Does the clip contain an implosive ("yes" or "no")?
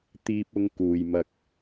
no